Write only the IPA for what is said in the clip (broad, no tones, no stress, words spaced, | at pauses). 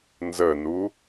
nzənu